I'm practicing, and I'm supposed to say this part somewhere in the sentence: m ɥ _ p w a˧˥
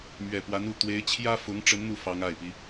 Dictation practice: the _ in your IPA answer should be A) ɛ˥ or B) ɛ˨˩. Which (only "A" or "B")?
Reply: B